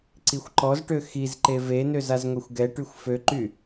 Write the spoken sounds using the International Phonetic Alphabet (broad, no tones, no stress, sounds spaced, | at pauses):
ǀ i xʷ ǃ ɔ z ʈ ø x i z ǃ e v e n ø z a z ŋʷ e xʷ ɡ ɛ ʈ y xʷ f ø ǃ y